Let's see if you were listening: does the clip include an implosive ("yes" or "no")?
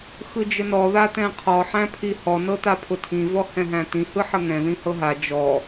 no